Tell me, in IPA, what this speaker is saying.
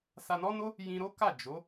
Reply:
s a˧ n ɔ˦ n o˦ | j ĩ˧ ɾ o˦ k a˦˨ d͡ʒ o˨˦

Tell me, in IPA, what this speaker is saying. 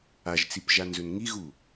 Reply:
a ʒ t͡s i p ʒ a n z ɵ n ŋ i ɣ u

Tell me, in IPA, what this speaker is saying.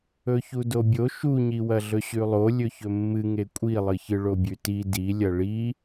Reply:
ɵ ç u d o bʲ o ʃ u ɲ i w ɐ ɮ ɵ ɕ ʉ lˠ o lʲ ɵ ç ɵ mː ɨ ŋ e kʷʼ i lˠ ɨ ç ɨ ɭ o bʲ ʉ t i d i lʲ ɐ ɭ i

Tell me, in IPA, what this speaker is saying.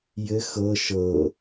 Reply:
j ɘ x ɤ ʃ ɤ

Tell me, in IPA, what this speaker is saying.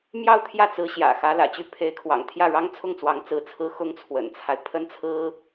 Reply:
m j ɑ˥˧ ʊ̯ t̪ʰ j ä˥˩ t͡s ɹ̩˧˥ ɕ j ä̰˨˩ x ä˧˥ l ä̰˨˩ t͡ɕ y˥˩ pʰ e˧˥ ɪ̯ kʰ w ɑ̰˨˩ ŋ t̪ʰ j ä˥˩ ɻ ɑ˥ ŋ t͡sʰ ʊ˥˩ ŋ t͡s w ɑ˧˥ ŋ t͡s ɹ̩˧˥ t͡sʰ ɹ̩˥ x ʊ˥ ŋ t͡sʰ w ə̰˨˩ n t͡sʰ a˦ ɪ̯ pʰ ə˥ n t͡sʰ ɹ̩˥

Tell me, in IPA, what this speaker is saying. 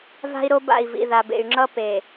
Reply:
v a̤˦ i̯ ɾ o˦ b a̰˦˨ i̯ v ḭ˨ ð a˨ b ḛ˨ y̯ ŋ͡ǁ ʌ˦ p e˨

